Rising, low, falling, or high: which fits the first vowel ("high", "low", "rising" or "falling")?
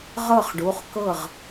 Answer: falling